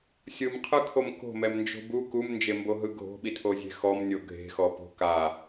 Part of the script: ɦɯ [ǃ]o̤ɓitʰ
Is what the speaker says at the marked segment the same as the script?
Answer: no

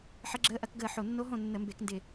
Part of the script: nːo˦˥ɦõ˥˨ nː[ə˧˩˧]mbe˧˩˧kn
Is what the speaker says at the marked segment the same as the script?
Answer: yes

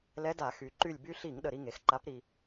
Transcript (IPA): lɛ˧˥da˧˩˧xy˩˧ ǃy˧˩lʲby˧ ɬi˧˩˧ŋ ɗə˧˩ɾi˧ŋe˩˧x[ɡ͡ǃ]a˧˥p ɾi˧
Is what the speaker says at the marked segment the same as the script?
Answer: no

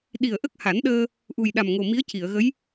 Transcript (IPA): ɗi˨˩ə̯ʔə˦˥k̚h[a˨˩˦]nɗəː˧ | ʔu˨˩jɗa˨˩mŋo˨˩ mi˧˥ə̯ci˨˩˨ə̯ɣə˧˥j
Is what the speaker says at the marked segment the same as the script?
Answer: yes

